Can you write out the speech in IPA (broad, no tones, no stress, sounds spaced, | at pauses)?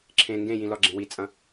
ǁʰ ẽ ŋ ɡ ẽ j ĩ l ɒ ɡ͡ǁ ẽ w i t͡sʼ ɐ̃